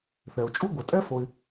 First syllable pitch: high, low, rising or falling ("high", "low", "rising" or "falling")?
low